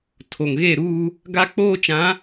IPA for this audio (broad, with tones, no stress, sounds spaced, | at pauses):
tʰ o˨ ŋ ɣ e˦˨ ɾ uː˦ | ɡ a˦ k͡p oː˦ t͡ʃ ã˨˦